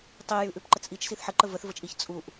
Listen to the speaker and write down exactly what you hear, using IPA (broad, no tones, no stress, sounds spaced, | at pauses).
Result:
tˤ i j ʉ ʔ ʉ p ǃ ə t͡s ʔ i t͡ʃ s i θ ħ ə ǃ ə v ə θ v ə t͡ʃ ʔ i ç t͡sʼ u ʔ